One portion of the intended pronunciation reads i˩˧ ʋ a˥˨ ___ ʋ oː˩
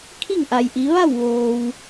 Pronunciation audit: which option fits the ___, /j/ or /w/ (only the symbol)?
w